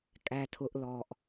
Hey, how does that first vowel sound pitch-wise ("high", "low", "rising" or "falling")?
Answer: low